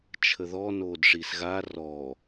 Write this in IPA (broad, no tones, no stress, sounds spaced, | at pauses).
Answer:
t͡ʃʰ ə ð ɔ n oː d ʂ i s ɣ a r ɔ